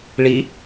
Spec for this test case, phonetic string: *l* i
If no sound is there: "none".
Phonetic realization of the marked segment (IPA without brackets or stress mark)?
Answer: ɭ